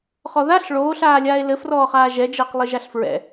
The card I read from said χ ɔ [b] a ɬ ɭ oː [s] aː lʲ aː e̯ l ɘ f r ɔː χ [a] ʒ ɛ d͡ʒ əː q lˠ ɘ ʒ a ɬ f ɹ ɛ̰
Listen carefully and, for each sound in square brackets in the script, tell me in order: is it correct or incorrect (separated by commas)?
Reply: incorrect, incorrect, incorrect